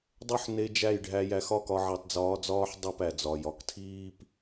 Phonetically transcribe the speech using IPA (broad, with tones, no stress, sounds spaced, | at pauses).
dˤ o˦ ħ n e˧ d͡ʒ æ˦˨ j ɖʱ æ˧ j æ˧ x ɒ˦ k ɒ˧ ʕ i˨ tˤ d͡z ɒː˧ d͡z ɒː˦ ħ dˤ u˦˨ p æ˨ d͡z ɒ˨ j ɒ˨ k tʰ iː˦ p